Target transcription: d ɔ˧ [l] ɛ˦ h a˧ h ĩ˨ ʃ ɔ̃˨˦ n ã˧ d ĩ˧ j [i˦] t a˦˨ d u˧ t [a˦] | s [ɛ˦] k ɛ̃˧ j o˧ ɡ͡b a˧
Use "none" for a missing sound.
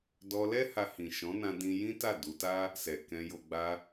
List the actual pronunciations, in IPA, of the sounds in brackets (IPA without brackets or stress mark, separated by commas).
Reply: l, ĩ˦, a˦, ɛ˨